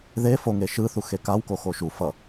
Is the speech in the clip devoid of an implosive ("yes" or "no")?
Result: yes